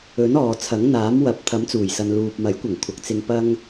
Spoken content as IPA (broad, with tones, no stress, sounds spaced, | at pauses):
ɵ˨˥ n ɔː˨ t͡sʰ ɐ˨˥ ŋ n̪ aː˨˥ m w ɐ˨˥ p̚ t̪ʰ ɐ˨˥ m t͡s uː˨˩ j s ɐ˨ n l uː˨ p̚ m ɐ˨˥ j kʷ ɐ˨˩ ŋ kʷʰ ɐ˨˥ k̚ t͡s ɪ˧ ŋ p ɐ˥ ŋ